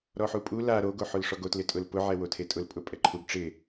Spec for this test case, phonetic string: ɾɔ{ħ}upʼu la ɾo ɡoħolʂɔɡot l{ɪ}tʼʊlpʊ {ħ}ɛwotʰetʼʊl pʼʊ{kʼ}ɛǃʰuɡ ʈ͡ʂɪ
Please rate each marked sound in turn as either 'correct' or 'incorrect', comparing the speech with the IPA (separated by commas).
correct, correct, incorrect, incorrect